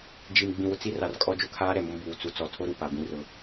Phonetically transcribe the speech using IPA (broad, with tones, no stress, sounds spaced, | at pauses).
d͡ʒ i˨ m ɡ͡b ĩ˨ w ʊ˨ t͡s i˦ r a˨ r kʼ ɔ˦ d͡ʒ ʊ˦ kʰ aː˦ ɾ ɛ˨ m ʊ˦ m b uː˨ t͡s u˨ t͡s ɔ˦˨ tʰ o˦ ɾ u˨ p a˨ b ĩ˦ r ʊ˦